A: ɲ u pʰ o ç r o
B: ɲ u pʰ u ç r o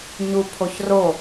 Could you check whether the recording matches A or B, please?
A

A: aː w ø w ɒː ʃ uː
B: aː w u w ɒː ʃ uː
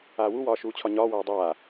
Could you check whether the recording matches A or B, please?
B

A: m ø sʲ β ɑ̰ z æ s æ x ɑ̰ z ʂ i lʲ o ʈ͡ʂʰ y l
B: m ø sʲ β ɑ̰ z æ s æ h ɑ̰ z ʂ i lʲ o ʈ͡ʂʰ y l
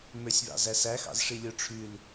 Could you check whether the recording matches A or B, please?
A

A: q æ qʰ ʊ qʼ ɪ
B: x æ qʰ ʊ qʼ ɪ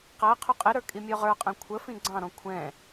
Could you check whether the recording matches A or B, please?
A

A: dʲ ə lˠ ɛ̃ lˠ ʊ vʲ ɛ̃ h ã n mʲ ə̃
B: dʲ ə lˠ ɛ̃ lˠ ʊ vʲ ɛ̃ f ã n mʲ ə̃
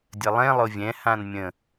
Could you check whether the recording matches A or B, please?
A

